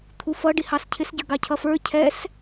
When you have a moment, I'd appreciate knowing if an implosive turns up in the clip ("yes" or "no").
no